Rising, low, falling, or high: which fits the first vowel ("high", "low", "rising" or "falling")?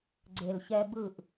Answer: low